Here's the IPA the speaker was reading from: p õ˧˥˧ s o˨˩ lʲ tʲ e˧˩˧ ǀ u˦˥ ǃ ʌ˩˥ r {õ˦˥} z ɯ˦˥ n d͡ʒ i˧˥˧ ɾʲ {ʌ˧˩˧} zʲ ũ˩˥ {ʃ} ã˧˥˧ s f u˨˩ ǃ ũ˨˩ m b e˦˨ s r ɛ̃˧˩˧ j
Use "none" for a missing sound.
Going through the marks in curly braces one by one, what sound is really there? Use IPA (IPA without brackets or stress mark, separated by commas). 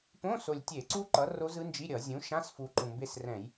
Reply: o˦˥, ʌ˧˩˧, ʃ